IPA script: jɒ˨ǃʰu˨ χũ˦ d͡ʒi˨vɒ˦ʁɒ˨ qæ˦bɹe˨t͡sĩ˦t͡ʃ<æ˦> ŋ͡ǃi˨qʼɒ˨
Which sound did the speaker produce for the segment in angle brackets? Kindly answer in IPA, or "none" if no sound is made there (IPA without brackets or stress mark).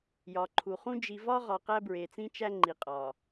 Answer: æ˦